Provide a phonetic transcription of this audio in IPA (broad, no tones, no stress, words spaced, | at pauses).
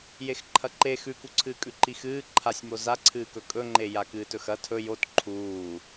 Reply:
jexǃʰɐǃe xʉkuǀʰɨːkʼʉ ǃixɨː ǃʰasʲmo zaǀʰɨːkɵ kʼɵŋ͡ǃe jakɨːtɵxɐ tʰɵ jot ǃʰuː